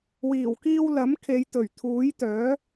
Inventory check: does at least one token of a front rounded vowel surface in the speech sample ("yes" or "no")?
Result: yes